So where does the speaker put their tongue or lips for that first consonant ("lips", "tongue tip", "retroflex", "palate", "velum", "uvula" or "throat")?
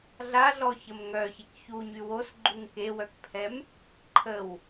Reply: tongue tip